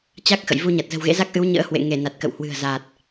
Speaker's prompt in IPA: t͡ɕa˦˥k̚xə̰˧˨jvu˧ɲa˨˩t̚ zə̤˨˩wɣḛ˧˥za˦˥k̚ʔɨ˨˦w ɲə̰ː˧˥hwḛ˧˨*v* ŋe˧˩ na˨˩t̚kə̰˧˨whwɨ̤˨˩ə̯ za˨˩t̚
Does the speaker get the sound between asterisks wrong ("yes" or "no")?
yes